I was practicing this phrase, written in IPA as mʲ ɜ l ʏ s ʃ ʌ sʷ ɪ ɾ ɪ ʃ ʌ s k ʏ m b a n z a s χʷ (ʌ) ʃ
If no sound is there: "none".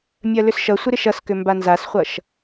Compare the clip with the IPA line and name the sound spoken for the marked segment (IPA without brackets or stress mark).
ʌ